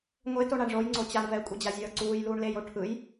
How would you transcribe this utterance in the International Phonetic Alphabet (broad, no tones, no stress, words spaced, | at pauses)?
ŋʷetoɳ aɳʐoj ŋ͡ǀot͡ɕaɳ vɛkʷʼid͡ʑa zʲʌːǀuːjluːɳ lejo ʈʰɯj